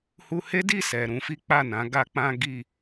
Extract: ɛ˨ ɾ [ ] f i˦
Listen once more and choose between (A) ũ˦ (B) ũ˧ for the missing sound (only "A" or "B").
B